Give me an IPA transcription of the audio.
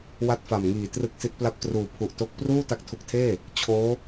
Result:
w a˥˩ t̚ f a˨˩ m ŋ iː˨˩ t r ɯ˨˩ k̚ s i˦˥ t̚ p l a˥˩ p̚ t r uː˨˩ pʰ u˨˩ ʔ t o˦˥ k̚ p r uː˥˩ t a˦˥ k̚ tʰ u˨˩ k̚ tʰ eː˥˩ | t͡ɕʰ oː˦˥

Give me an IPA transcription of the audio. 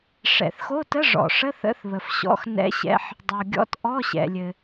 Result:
ʂ ɛ̰˩ θ x o˧˥˧ t ə˧˥˧ ʐ ɔ̰˩ ʂ ə˧˥˧ θ ə̰˧˥˧ θ β ə˩ f ɕ ɔ̰˧˥˧ x n ɛ̰˧˥˧ ɕ ɛ̰˧˥˧ ħ | dˤ o˩ ɡʲ ɔ̰˧˥˧ t ʔ ɔ˧˥˧ ɕ ɛ̰˩ lʲ ɘ˩

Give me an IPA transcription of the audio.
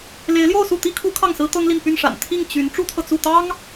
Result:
l e˧˥ ɪ̯ l j o˥˧ ʊ̯ s u˥˩ t̪ i˥ kʰ u˧˥ kʰ ɑ˥˩ ŋ s ɹ̩˥ t̪ ɤ˥ ŋ l i˥˧ n p y˥˩ n ʂ a̰˨˩ n t̪ʰ i˥˩ ŋ t͡ɕ y˧˥ n ʈ͡ʂ u˥ t̪ʰ ɤ˨ t͡s u˥˩ t̪ ɑ˥ ŋ

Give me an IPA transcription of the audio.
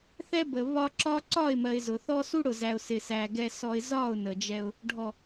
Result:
θ ɛ˦ b ə˨ β ɒ˦ ǁ ɒ˦ ǀ ɒ˦˨ ɪ̯ m ɜ˨ ɪ̯ z ʊ˨ θ ɔ˦ s u˦ ɽ ʊ˨ z æ˨ ʊ̯ s ɪ˨ s æ˨ ɡ ɛ˨ s ɔ˨ ɪ̯ z ɒ˦˨ ʊ̯ n ə˨ d͡ʒ ɛ˦ ʊ̯ | ɖʱ ɔ˨

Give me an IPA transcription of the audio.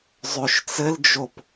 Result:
zˤ ø ʃ t͡s ɘ l d͡ʒ o p

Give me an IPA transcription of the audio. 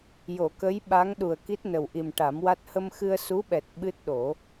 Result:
j o˨˩˨ k ə˧˥ j ɓ a˧˥ ŋ ɗ u˨˩ ə̯ k i˦˥ t̚ n ə˨˩ w ʔ i˨˩ m ʈ a˨˩˦ m w a˦˥ t̚ h ə˧ m x ɨ˧ ə̯ s u˧˥ ɓ ɛ˨˩ t̚ ɓ ɨ˦˥ t̚ ɗ o˨˩˦

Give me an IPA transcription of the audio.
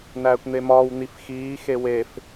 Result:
n æː kʷ n̪ e m ɒː w n̪ i f x iː x e w e f

